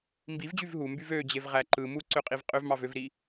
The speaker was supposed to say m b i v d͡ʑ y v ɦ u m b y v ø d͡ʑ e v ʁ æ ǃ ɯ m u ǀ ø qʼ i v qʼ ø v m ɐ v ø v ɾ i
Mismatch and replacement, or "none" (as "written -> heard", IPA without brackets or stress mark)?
ɐ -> ɑ